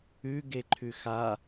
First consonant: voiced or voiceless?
voiced